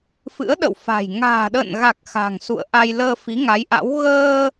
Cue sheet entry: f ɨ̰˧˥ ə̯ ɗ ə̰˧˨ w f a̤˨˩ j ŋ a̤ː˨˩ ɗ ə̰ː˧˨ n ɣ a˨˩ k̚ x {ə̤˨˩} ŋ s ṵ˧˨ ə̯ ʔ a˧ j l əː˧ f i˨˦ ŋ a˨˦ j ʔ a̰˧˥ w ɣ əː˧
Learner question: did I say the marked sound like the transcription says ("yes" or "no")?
no